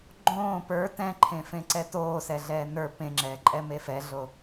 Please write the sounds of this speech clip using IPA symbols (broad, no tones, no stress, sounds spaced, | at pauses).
ɡ͡ǃ õː p ə˞ t ɛ̃ ǃʰ ẽ f ẽ ǀ ɛ t oː s ɛ ɮ ɛː n ə˞ p ẽ ŋ͡ǁ ɛː ǃʼ ɛ m e f ɛ ɮ o